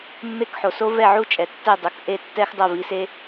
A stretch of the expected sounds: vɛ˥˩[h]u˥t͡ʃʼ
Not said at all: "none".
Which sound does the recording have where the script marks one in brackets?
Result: ʕ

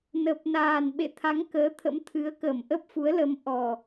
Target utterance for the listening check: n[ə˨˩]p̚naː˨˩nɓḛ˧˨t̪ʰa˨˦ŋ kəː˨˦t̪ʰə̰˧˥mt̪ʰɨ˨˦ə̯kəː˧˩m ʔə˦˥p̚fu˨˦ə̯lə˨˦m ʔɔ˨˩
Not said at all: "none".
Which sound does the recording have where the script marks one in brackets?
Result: ə˨˩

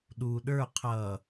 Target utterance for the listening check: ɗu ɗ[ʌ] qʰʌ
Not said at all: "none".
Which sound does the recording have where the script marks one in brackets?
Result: ə˞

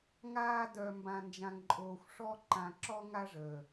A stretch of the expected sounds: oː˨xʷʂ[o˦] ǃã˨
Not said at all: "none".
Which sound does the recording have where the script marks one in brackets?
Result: ɔ˦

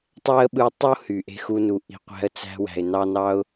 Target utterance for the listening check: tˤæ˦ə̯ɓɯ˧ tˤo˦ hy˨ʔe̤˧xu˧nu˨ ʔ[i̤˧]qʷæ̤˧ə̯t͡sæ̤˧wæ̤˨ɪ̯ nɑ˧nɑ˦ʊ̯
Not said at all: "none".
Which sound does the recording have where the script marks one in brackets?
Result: i̤˨˦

